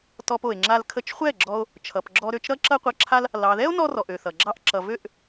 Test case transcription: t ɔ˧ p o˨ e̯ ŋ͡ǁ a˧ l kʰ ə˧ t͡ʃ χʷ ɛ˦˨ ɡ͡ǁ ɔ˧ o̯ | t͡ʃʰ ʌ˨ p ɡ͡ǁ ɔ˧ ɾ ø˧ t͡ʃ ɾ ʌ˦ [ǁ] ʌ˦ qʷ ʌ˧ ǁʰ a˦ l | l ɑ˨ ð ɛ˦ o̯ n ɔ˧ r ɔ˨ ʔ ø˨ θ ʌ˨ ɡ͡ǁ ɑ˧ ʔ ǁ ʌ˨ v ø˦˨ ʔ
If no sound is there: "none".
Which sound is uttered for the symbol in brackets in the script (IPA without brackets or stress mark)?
ǁ